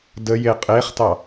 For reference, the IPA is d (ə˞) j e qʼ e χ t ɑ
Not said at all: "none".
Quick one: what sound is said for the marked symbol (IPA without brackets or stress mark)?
ə